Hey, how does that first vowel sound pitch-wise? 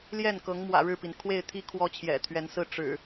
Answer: falling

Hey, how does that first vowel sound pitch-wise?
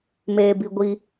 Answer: low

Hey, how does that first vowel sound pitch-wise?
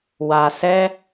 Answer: low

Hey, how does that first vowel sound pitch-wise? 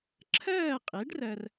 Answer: falling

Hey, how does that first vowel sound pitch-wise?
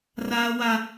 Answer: high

